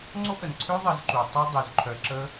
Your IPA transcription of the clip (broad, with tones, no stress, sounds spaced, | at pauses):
ŋ͡ǀ o˦ ʔ ə˨ n ǀʰ ø˦ ðˤ ə˧ z ǃ u˨ tˤ œ˦ dˤ y˨ z ǃʰ œ˧ ǁ ə˦